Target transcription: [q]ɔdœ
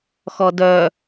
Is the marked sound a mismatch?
yes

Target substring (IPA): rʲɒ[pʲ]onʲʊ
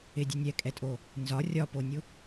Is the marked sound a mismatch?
yes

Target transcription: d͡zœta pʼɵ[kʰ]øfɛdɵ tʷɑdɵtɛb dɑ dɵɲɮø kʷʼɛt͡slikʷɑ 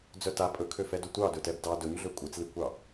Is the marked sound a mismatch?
no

